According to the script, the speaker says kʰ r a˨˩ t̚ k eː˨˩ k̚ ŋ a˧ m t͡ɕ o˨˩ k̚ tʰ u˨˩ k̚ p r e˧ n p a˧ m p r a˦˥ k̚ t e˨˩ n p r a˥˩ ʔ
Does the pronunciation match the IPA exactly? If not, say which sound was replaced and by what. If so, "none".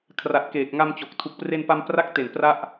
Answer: none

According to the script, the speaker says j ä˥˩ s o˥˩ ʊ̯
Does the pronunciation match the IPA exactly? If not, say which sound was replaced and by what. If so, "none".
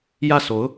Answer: o˥˩ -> o˧˥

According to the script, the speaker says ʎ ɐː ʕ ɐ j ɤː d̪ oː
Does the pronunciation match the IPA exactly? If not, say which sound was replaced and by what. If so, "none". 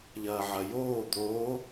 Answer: ɤː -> oː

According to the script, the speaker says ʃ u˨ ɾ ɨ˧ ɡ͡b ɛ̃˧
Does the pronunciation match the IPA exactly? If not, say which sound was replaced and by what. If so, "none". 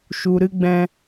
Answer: none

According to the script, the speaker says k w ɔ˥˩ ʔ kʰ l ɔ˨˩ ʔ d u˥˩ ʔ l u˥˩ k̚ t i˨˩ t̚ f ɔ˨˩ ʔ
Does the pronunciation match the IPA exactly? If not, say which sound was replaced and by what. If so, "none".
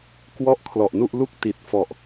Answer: d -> n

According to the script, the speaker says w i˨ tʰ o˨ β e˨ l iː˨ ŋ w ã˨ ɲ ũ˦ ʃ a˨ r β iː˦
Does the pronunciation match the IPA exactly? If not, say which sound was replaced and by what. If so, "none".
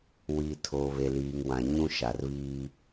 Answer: none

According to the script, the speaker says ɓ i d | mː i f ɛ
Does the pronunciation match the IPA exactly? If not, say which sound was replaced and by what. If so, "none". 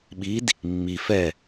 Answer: none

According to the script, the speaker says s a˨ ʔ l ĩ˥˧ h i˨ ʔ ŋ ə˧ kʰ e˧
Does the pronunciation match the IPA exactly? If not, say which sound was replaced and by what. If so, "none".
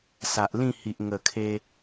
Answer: ə˧ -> ə˨˩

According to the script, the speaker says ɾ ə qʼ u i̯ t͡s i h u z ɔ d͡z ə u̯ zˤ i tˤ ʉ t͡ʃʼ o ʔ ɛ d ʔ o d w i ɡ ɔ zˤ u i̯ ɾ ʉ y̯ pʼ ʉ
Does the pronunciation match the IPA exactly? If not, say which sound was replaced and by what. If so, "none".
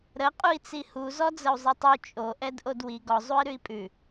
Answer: y̯ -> i̯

